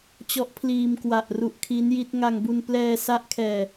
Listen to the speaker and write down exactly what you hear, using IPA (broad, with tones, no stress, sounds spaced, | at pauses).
t͡ɕ ɔ˦˥ ʔ pʰ l iː˧ m k w a˨˩ ʔ r u˨˩ ʔ kʰ i˦˥ n j i˦˥ t̚ ŋ a˧ ŋ b u˧ n p l ɛː˧ s a˦˥ ʔ kʰ ɛː˧